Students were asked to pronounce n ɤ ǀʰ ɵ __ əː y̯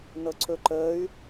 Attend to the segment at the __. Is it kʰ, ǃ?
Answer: ǃ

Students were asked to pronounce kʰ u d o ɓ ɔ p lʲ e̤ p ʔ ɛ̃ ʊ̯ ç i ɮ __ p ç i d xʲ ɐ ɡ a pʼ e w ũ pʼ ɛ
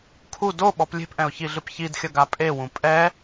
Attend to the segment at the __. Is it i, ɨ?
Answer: ɨ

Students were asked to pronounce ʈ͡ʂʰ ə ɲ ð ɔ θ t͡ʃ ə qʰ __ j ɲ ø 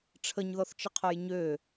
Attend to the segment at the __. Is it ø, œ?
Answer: œ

